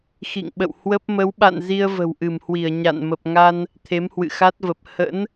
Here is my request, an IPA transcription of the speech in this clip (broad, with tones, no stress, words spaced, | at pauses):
xḭ˧˨ŋɓə̰˧˨w hwə˦˥p̚ mə˨˦wɓa̰˧˨n zi˧ə̯ və̤˨˩wʔɨ˧˩mhwi˧˩ə̯ ɲa̰˧˨n mə˨˩p̚ŋa˧n | t̪ʰe˨˦mhwɨ̰˧˨xa˦˥t̚və˨˩p̚ hə̰˧˥n